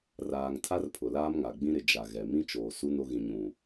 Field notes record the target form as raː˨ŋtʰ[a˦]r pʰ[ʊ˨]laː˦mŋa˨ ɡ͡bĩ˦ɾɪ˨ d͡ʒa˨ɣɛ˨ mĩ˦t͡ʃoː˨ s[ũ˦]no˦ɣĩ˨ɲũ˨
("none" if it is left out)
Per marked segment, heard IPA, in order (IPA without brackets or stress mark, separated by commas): a˦, ʊ˨, u˦